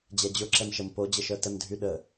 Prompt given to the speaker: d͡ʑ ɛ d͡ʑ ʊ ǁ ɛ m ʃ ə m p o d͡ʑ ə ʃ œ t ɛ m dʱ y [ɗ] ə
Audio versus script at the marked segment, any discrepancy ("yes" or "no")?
no